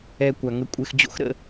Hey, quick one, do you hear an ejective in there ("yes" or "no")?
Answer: yes